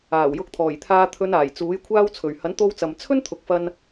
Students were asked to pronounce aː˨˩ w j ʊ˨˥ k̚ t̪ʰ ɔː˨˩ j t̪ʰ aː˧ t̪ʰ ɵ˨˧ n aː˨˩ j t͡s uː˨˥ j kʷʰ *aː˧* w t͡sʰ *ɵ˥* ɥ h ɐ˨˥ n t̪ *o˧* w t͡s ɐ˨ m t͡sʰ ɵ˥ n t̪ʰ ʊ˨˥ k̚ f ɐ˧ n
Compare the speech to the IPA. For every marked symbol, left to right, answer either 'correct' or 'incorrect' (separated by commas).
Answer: correct, incorrect, correct